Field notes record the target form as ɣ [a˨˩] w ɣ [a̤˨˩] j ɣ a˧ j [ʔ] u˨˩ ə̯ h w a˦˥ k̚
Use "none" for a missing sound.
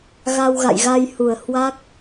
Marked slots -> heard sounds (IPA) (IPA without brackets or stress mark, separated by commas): a˧, a̰˧˨, h